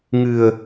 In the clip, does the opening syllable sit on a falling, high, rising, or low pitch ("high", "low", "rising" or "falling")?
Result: low